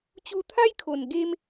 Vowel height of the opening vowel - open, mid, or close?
close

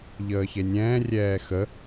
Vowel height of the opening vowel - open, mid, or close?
mid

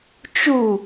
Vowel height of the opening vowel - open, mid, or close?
close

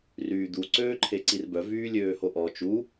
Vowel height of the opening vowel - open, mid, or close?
close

